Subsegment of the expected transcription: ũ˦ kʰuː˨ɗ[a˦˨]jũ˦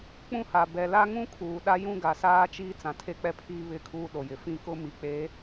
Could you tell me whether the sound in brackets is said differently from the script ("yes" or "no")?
yes